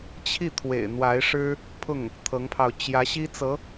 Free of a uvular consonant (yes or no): yes